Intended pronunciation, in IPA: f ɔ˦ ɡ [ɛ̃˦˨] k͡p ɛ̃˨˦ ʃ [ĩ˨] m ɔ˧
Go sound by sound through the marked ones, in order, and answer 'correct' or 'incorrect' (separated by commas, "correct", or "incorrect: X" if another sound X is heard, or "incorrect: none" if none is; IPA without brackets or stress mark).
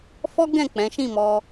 correct, incorrect: ĩ˦˨